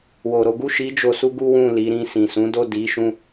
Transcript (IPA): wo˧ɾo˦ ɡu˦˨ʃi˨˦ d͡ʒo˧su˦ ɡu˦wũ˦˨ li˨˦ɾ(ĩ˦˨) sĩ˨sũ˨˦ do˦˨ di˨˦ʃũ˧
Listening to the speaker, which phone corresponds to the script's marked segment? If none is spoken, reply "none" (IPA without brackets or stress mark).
ĩ˦˨